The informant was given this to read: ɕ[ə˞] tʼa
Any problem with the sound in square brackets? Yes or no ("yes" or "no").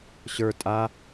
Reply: no